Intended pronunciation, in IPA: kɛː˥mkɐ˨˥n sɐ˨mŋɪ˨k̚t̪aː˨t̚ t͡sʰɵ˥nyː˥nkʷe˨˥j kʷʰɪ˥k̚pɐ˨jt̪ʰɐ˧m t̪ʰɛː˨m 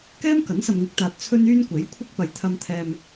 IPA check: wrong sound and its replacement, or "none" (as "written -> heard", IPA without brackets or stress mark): none